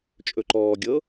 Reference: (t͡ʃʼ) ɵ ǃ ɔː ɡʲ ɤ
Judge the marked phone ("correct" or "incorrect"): correct